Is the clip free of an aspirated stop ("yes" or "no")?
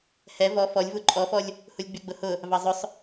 yes